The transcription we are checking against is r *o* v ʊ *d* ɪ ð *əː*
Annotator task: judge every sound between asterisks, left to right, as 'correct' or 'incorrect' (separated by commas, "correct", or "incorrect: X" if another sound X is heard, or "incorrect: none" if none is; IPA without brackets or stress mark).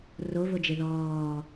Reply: correct, incorrect: d͡ʒ, incorrect: ɔː